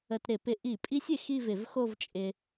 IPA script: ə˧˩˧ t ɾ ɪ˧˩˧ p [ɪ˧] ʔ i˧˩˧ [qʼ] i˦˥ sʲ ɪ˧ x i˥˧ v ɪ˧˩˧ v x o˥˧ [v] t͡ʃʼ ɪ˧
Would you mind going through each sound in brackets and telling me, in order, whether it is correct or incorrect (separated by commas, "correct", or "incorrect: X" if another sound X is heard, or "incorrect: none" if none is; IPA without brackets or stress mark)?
correct, incorrect: pʼ, correct